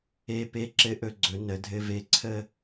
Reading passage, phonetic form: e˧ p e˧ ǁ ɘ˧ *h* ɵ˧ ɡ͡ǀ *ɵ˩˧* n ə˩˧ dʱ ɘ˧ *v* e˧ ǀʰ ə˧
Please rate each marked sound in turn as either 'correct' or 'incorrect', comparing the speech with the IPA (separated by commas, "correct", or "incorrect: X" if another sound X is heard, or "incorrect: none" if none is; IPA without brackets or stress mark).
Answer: incorrect: ʔ, correct, correct